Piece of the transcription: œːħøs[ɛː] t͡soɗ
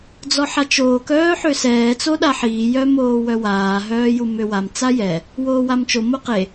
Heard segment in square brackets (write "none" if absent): ɛː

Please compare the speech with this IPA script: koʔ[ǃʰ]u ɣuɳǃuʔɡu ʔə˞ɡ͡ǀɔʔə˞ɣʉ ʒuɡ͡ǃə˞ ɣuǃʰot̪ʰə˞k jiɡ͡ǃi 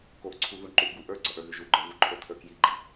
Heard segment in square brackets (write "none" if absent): ǀʰ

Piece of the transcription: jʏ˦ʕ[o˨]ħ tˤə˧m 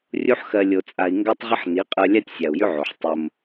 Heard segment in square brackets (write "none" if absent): o˨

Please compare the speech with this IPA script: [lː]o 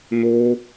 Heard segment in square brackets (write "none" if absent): n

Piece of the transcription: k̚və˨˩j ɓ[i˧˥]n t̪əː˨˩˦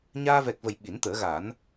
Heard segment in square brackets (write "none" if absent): i˨˩˦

